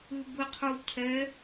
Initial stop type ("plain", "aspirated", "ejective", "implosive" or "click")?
plain